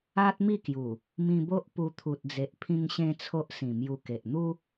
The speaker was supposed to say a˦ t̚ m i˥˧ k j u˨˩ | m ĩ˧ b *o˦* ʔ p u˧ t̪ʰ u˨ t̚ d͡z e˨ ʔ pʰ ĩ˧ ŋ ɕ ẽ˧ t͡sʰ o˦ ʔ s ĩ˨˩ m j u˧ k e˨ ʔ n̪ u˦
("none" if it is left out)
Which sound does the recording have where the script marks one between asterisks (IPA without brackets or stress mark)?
o˦